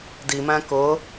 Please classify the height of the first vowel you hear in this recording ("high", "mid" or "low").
high